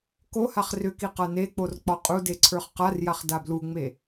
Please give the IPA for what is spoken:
k o h a χ r ʏ k i q a n e k͡p o r k͡p ɒ qʼ u d e ǀʰ ə˞ χ q a r j a χ d a b l u ŋ͡m e

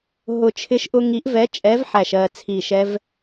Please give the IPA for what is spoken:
ɦ ʊ˧˩ t͡ʃʰ ɪ˦˥ ʃ ʔ ʊ˦˥ ŋ i˨˥ ʔ v ɛ˨˥ t͡ʃʼ ɛ˨˥ v ħ æ˧˩ ʃ ɜ˧˩ t͡sʰ i˧˩ ʃ ɛ˦˥ v

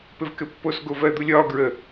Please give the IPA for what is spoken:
p ɘ v k ɘ pː o s ɡ o v ɜ d̪ u lʲ ɒ ɡ ɹ ə

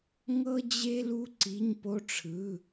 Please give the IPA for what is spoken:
ŋ ɤ˥ d͡ʑ e˥ l u˥ ǀ i˧˥˧ ɲ p o˥ ʈ͡ʂʰ ɯ˧˥˧

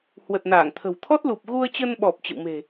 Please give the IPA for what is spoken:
h w ə˨˩ t̚ n aː˧˩ ŋ t̪ʰ ə̤˨˩ w t̪ʰ ɔ˦˥ t̚ l u˨˩ p̚ ɣ u˧ ə̯ t͡ɕ ə˧ n ɓ ɔ˨˩ p̚ t͡ɕ ə̰˧˨ w m e̤˨˩

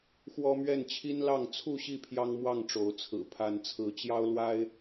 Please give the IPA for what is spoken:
x w ɔ˦ m ɥ ɛ˥˨ n t͡ɕʰ i˦ n l ɑ˥˨ ŋ t͡sʰ u˥˨ ɕ i˥˨ pʰ j ɑ˦ ŋ m w ɑ˥˨ ŋ ʈ͡ʂ o˨˦ ʊ̯ t͡sʰ ɹ̩˨˩ pʰ a˨˦ n t͡sʰ ɹ̩˨˦ t͡ɕ j ɑ˦ ʊ̯ l w a˦ ɪ̯

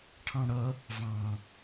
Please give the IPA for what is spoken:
ʈʰ ɑ̃ ɽ ʌ | v ɑ̃

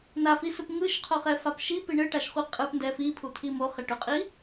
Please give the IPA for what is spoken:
n a f i s ɯ p ŋ ɯ ʃ qʰ o χ ɛ f a p ʃ i p i ɳ ɯ ʈ a ʃ χʷ i qʼ ɯ p n d ɛ f i pʰ u t̪ʰ i m o χ ɛ ʈ o qʼ i

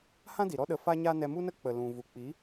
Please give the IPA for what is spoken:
h ã˦ d i˨ ɾ ɔ˦ ɗ ə˧ f a˦ ɲ a˦ n ɛ˧ m u˦ n ə˦ k͡p ə˨ l ũ˨ v u˨ k͡p i˨˦

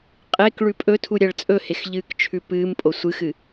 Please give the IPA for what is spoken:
qʼ e k ɭ ʉ pʼ ɵ tʰ u ɾʲ a ɭ t͡sʼ ɵ h e x ʎ ɨː k t͡ʃʰ ʉ p ɨː m pʼ o sʷ ɨ x ɨ

